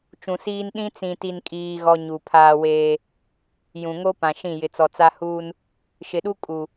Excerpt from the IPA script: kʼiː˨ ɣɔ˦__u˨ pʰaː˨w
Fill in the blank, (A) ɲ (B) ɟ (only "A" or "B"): A